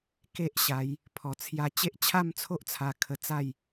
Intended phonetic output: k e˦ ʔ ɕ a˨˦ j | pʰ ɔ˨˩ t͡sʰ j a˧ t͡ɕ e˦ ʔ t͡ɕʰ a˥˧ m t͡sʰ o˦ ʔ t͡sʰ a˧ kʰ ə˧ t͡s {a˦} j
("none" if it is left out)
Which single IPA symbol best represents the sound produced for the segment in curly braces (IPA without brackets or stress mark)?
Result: a˥˧